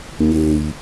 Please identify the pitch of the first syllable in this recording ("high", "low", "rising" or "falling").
low